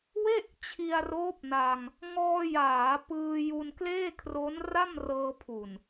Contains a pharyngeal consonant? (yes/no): no